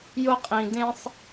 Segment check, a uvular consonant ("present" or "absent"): present